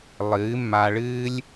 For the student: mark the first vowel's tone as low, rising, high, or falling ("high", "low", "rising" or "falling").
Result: rising